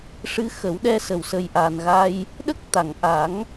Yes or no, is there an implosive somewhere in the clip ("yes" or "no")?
yes